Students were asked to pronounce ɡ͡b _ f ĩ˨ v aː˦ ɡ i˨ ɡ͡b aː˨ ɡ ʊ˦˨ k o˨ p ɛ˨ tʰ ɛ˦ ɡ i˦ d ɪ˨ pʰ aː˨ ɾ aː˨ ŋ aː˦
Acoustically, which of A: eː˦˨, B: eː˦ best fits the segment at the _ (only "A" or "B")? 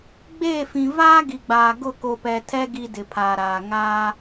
A